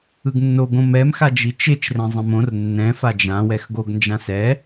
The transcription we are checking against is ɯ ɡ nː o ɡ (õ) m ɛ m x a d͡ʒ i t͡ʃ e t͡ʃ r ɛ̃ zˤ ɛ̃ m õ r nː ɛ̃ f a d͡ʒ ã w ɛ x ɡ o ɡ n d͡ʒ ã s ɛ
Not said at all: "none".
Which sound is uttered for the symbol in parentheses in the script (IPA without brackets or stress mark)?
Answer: õ